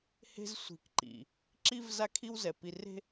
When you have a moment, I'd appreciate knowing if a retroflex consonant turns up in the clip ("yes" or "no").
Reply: no